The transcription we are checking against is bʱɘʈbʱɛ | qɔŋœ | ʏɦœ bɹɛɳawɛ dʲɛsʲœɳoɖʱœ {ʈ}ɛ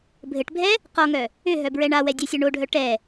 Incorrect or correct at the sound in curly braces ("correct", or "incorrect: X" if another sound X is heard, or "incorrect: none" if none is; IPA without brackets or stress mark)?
correct